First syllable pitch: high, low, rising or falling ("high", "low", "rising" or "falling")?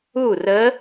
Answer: falling